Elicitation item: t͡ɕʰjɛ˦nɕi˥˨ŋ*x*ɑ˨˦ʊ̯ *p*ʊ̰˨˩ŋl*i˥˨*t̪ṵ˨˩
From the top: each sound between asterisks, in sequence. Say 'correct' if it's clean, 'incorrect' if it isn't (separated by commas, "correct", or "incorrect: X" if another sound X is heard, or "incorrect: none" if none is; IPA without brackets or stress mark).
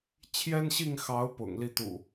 correct, correct, correct